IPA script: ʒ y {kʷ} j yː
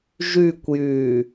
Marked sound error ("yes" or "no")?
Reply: no